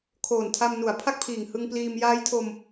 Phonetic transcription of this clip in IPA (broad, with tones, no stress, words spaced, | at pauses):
kʰoː˨˩ntʰa˧m nu˩˦a̯ pʰa˥˩k̚pʰiː˨˩ŋ hɯ˧ŋpliː˧m jaː˦˥jtʰo˧m